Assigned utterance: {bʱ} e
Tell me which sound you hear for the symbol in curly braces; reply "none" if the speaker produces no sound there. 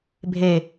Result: bʱ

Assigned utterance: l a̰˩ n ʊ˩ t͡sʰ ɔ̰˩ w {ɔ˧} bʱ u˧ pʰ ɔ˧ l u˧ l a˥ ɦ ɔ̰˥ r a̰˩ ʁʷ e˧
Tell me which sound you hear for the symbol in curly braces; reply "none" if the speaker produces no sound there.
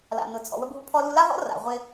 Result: ə˧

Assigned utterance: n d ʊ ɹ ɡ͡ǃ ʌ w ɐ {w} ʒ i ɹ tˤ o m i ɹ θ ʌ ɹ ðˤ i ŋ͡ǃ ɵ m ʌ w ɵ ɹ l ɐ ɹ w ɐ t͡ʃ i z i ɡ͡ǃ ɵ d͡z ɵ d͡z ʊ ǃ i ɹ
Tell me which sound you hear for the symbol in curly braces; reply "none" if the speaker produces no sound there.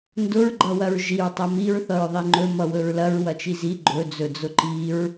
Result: ɹ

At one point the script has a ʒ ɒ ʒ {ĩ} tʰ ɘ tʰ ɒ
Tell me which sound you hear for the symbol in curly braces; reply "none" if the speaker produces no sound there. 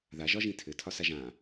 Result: ĩ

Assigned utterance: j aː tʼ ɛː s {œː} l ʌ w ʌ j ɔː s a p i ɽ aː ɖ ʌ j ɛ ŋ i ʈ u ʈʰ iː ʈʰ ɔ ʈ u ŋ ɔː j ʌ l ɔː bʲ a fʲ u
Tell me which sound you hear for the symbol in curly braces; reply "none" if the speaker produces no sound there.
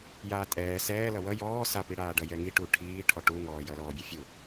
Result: ɛː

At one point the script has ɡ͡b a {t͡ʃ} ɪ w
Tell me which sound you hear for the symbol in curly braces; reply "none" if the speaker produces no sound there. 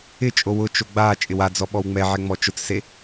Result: t͡ʃʼ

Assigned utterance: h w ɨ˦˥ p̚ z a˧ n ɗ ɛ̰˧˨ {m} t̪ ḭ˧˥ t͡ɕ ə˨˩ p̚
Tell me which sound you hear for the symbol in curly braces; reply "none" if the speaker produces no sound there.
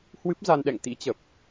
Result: ŋ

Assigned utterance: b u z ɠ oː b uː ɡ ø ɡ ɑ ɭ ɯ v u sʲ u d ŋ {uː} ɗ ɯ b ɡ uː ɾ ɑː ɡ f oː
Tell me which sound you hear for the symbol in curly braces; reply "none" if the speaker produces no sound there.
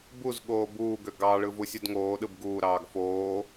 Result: oː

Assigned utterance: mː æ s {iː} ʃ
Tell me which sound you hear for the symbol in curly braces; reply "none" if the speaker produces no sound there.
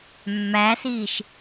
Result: iː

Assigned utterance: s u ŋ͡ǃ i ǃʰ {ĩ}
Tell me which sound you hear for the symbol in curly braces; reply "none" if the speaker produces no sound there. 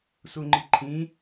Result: ĩ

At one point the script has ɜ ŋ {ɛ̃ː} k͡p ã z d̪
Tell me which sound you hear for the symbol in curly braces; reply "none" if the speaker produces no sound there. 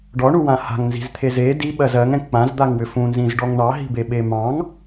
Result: ɛ̃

